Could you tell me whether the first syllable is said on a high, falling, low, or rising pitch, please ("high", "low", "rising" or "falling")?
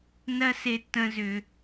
high